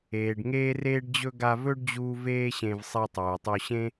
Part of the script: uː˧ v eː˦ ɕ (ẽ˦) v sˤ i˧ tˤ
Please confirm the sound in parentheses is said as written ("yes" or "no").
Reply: no